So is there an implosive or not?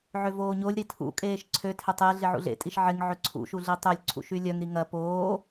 no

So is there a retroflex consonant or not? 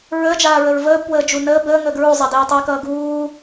no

